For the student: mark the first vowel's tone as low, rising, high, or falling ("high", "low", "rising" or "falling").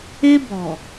high